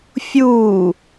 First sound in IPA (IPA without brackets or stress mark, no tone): fʲ